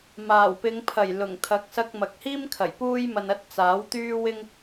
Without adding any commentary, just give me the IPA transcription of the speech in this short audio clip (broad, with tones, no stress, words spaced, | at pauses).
maː˨˩wpɪ˨˧ŋpʰɐ˨˩j lʊ˨˩ŋt̪ʰɐ˨˥k̚ sɐ˧k̚mɐ˨k̚hiː˥mkʰɐ˨˩j puː˥jmɐ˧nɐ˥t̚ t͡saː˨˥wt̪yː˥wɪ˥ŋ